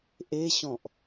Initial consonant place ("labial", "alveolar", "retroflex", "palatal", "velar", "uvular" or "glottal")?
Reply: glottal